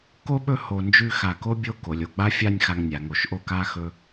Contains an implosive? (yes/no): yes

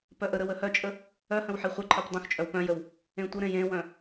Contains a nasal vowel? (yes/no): yes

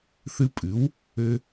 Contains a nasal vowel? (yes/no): no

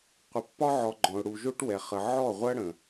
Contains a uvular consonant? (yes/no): yes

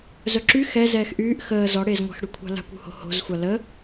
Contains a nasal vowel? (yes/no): no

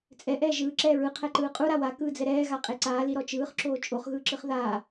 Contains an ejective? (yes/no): yes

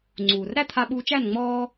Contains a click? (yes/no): yes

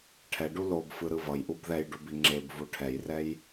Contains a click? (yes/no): yes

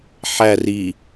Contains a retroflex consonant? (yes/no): no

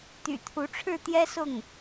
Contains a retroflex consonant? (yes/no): yes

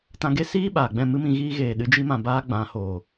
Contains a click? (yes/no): no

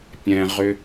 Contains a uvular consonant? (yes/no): yes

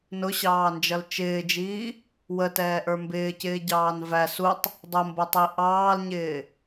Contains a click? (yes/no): no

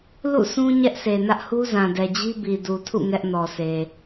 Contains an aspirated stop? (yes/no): yes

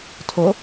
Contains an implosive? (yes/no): no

